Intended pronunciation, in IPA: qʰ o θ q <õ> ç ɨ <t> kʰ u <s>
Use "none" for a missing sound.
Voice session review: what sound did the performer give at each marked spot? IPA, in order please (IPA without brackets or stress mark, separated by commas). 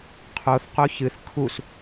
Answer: o, θ, s